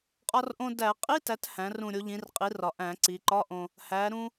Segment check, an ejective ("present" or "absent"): present